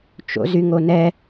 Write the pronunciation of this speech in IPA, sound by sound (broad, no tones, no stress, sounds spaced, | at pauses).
t͡ʃ o̰ z y ŋ o n ɛ